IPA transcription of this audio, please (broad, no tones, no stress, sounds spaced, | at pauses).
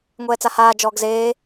ŋʷ ɛː t͡s a h aː d͡ʒ ɔː ɡ z eː